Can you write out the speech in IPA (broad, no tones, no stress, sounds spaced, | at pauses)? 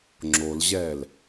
ŋ͡ǁ o l ʑ ɛː l